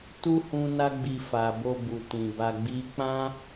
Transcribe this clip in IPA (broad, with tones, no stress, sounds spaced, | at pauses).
t u˦ h ũ˦ n a˦ ɡ͡b i˧ f a˨ b o˧ b u˨ t ĩ˨ b a˧ ɡ͡b i˦ k͡p ã˦